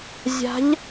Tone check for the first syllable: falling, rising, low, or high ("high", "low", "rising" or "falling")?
rising